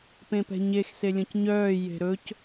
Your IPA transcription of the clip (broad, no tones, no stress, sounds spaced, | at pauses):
p ẽ p ɛ̤ ɲ e x s e lʲ ɔ̃ c ɲ œː j e̤ ɾ ɵ c